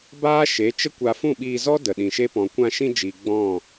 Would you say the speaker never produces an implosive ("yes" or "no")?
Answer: no